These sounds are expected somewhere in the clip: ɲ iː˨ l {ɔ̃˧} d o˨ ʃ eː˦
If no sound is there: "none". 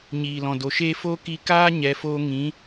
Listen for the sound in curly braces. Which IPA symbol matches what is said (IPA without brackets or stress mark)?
ɔ̃˨